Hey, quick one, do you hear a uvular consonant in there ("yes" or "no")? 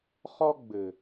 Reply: yes